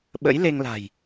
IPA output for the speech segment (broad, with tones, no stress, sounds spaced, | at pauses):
ɓ ə̰˧˥ j l e˧ ŋ l a̤˨˩ j